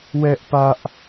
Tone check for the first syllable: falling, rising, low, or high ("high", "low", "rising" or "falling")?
high